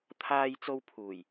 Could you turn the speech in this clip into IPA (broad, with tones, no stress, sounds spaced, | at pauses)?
t̪ʰ aː˧ j t͡s o˧ w pʰ uː˨˩ j